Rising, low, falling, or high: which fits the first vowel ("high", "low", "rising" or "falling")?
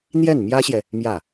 falling